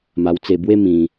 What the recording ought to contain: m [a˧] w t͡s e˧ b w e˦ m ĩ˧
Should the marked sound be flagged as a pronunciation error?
no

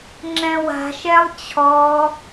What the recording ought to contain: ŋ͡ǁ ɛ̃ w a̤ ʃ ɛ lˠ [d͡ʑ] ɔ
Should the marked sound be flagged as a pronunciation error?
yes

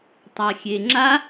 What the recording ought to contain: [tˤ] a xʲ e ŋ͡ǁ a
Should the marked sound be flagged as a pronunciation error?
no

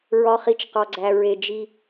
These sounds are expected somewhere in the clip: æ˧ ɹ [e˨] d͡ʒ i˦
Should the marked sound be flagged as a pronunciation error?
yes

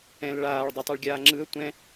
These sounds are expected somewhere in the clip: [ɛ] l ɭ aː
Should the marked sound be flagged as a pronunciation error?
yes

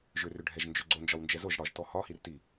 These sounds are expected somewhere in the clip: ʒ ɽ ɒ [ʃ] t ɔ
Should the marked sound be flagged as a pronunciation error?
yes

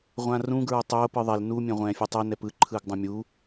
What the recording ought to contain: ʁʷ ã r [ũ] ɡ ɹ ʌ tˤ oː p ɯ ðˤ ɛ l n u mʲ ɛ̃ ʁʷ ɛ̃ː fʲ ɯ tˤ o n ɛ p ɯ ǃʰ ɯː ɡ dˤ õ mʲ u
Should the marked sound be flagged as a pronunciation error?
no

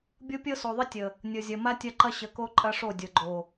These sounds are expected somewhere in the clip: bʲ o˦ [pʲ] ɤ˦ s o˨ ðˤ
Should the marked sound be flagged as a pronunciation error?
no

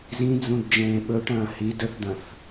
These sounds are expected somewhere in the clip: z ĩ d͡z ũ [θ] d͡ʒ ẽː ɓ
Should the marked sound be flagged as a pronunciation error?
yes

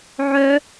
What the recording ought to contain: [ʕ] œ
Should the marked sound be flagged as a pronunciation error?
no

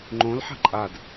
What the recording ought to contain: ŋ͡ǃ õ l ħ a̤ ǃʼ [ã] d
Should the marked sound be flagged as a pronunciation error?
yes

